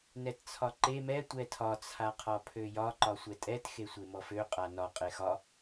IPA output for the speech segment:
n ɛ t t͡sʰ ɒ ǃ e m ɛ tʷ ɛ tʰ ɒ t͡sʰ a qʰ ɒ pʰ ø j ɒ ǃ ɒ sʷ ɛ tʼ ɛ t x e sʷ e m ɔ f ø qʼ a n ɒ qʼ e x ɒ

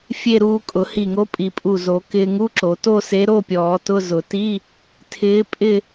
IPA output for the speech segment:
fʲ e˥˧ ɾ uː˧ kʼ ʊ˨˩˦ h i˧˩ ŋ o˧˥ pʼ i˨˩˦ pʼ u˧˩ z o˨˩˦ k ɪː˧ ŋ u˧˥˧ ǁ o˨˩˦ t o˥˧ s e˧˥ ɾ o˧˥˧ pʲ ɔː˨˩˦ t ʊ˧˥˧ z ʊ˨˩˦ t i˧˥˧ | tʰ ɪː˧˥ pʼ ɪ˥˧

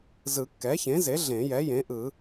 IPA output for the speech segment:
z ɯ˨˩˦ kː ɛ˩˥ ç ẽ˩˥ z e˩˥ ɮ ẽ˨˩˦ j ɛ˩˥ j ẽ˩˥ ʔ ɯ˨˩˦

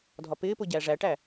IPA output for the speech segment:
dʱ ɒ p ɪː p ʊ ɟ æ ʐ æ ʈ æ

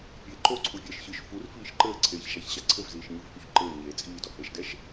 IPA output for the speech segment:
pʲ eː ǃ o ǀʰ u vʲ ɛː ʃ ç ɨ ʃ f u r f iː ʃ ǃ ɘː ǀʰ eː ç ʃ a ç ɕ a ǀʰ ɘ v z iː ʃ ɲ ɨ v h u ç ǃ ɘː ɲ eː t͡sʼ iː d ɔ h e ʃ d ɛ ʃ

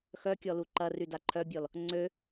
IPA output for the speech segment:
x œ kʲ ɔ l u ǃ ɐ r y d a ǃʰ œ bʲ ɔ l | ŋ͡ǀ ø

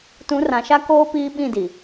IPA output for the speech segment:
t ũ˨˦ r ã˨ ʃ a˦ k oː˦ p iː˦ ɓ ĩ˦˨ d i˨

